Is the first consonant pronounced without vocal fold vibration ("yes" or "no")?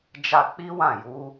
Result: no